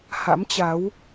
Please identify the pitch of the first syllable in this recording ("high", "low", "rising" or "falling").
rising